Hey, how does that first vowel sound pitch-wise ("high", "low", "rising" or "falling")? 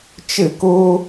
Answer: falling